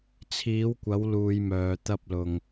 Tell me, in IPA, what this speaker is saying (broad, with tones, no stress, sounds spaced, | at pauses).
t͡sʰ iː˨˥ w kʷ ɐ˨˥ w l uː˧ j m œː˨˧ t̪ ɐ˧ p̚ l ʊ˨ ŋ